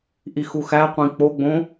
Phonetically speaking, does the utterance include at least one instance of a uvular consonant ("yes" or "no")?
yes